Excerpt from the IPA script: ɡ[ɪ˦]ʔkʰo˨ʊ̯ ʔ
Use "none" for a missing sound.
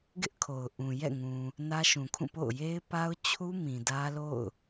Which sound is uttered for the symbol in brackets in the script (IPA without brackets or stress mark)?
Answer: ɪ˦